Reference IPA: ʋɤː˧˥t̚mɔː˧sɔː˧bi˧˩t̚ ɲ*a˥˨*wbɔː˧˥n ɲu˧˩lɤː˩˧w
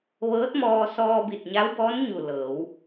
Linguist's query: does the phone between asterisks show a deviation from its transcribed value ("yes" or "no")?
yes